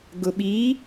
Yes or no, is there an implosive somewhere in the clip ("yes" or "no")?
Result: yes